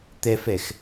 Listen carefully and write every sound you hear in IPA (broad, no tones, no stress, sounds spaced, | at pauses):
t̪ ɛ f ɛ x